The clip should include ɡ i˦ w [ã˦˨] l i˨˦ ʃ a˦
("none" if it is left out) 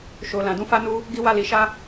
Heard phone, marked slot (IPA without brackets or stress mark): a˦˨